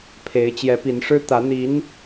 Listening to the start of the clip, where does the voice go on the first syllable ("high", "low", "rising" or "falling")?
rising